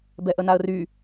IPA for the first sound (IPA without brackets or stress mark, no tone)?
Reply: b